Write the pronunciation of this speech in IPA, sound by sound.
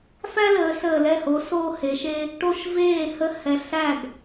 f æ˦ l əː˩˧ s əː˨˩ l ɛ˥˩ h o˨˥ s oː˦ h e˩˧ ʃ e˦ | ʈ o˦ ʃ v eː˥˩ h ə˦ h ɛ˨˩ ɬ æ˥˩ ɡ

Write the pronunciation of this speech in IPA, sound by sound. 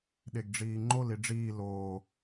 ɗ e ɡ ɖ͡ʐ iː ŋ͡ǃ o l i ɖ͡ʐ iː l oː

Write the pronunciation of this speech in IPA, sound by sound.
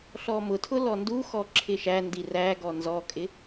ɬ ɔ m ʊ tʰ ʊ l ɔ n d u x ɔ ǁʰ ɪ ʃ æ n d i r æ ɡ ɔ n z ɔ kʼ ɪ

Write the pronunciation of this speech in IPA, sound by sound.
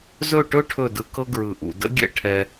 z ɵ˦˨ ʈ ɵ˦ ʈʰ ɵ˦˨ d ɯ˧ k ɤ˦ ɡ ɹ ɯ˨ ʔ ṵ˨ d ə̰˦ ɡʲ ɛ̰˦ ʈʰ ɛ˧

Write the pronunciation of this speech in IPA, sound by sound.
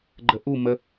ɡ͡ǃ ə ʔ u m ə

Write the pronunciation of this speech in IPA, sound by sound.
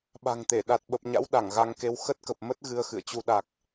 ɓ a̤˨˩ ŋ t̪ e˧˩ ɗ a˨˩ t̚ ɓ ə˨˩ p̚ ɲ a̰˧˥ w ɗ a˧˩ ŋ ɣ a˧ ŋ k e˧ w x ə˦˥ t̚ k ə˨˩ p̚ m ə˦˥ t̚ ɣ ɨ˧ ə̯ x ɨ̰˧˨ ə̯ t͡ɕ u˧ ɗ a˨˩ k̚

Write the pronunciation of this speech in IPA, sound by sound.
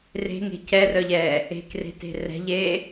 r e̤ ŋ e̤ c ɛ r œ ʎ ɛː | e̤ k r e̤ t e̤ r ɛ̤ ʎ eː

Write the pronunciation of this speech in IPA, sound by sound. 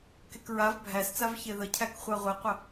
k e k ɹ a v bʱ æ s t͡s a v ç e ð ə cʰ æ k χʷ a ʁʷ e qʷ ə

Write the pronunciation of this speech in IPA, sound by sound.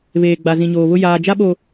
β eː˨ ɡ͡b a˨ z ĩ˨ ɲ oː˨ β ʊ˦ j aː˨ d͡ʒ a˦ ɓ o˨

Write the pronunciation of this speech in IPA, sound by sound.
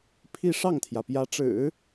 pʰ i˥˧ ʂ ɑ˥˩ ŋ t̪ʰ j ä˩ p j ä˧˥ ʈ͡ʂ ɻ̩˨˩˦

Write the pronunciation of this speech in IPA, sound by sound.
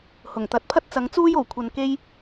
h ʊ˨˩ ŋ t̪ ɐ˨˥ t̚ pʰ ɐ˥ t̚ t͡s ɐ˨˧ ŋ t͡s uː˥ j o˨˩ w kʷʰ ɐ˨ n k e˧ j

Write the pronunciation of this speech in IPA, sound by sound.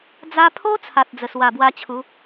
d͡z a˧ pʰ o˦ t͡sʰ a˨ t̚ d͡z ə˨˩ s w a˨˩ b w a˧ t͡ɕʰ u˨˦

